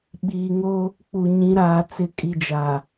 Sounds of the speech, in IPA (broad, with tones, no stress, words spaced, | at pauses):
ɓiː˨ŋoː˦ | k͡pu˨ ɲĩ˨˦ɾaː˨ t͡sɪ˨kʼi˨d͡ʒaː˨